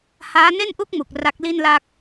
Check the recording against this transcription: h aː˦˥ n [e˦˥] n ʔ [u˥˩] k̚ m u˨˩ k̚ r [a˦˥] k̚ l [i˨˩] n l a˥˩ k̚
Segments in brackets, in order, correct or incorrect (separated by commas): incorrect, correct, correct, incorrect